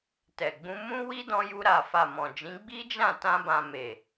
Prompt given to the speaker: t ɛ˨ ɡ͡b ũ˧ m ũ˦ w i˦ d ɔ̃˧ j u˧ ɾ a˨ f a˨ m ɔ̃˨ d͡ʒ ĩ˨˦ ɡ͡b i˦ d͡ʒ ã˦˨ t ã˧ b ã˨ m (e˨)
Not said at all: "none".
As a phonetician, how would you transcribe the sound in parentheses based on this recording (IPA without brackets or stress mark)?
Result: e˨